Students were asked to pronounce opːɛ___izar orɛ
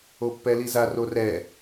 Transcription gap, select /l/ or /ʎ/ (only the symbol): l